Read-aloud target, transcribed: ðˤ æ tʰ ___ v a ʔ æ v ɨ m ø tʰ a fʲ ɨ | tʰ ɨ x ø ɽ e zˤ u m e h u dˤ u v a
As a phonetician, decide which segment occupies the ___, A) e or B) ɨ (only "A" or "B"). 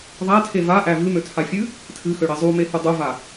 A